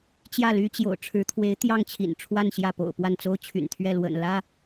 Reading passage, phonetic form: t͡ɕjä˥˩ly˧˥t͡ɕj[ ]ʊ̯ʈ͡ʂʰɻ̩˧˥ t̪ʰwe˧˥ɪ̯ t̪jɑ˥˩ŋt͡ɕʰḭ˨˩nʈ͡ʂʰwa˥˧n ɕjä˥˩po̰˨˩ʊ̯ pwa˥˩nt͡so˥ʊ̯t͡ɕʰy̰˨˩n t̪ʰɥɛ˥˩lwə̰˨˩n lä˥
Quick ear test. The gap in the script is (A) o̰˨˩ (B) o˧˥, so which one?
A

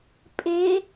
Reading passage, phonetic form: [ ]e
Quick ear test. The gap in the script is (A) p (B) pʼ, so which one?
B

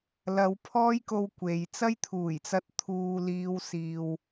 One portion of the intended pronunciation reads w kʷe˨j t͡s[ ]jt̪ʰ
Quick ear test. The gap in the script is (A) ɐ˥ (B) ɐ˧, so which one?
A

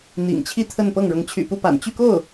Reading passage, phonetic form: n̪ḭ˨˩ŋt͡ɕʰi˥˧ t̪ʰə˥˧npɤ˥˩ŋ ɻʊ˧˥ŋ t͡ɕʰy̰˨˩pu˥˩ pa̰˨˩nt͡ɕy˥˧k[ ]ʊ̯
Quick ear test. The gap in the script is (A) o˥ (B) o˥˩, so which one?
B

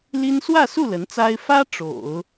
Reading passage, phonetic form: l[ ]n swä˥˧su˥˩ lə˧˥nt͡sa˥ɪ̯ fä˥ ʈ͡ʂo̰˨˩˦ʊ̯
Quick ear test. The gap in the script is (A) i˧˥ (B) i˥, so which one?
B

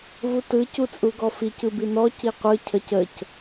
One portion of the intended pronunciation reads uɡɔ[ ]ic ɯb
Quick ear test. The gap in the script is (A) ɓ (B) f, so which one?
B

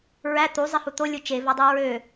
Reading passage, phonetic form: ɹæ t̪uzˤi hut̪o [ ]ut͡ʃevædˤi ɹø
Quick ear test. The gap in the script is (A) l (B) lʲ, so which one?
B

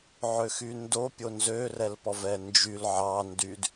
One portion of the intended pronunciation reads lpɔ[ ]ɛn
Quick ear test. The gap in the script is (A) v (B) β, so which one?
A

